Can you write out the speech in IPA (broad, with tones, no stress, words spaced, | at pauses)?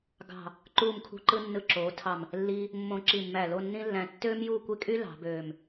ɡɑ̤˧˩ | ǃuː˧˩mkʰṳ˧ǃɯ˧ nːɯ˧˩ǁoː˩˧ tʰɑ˧˩m | lːiː˧ | mːõ˧˩ ǁi˧˩mːæ˧˩lo˥˧nːĩ˥ lːæ̃˧ tːøː˥mjuː˥˧ kʷe˥kʼy˥ lɑ̤˩˧bøː˧˩m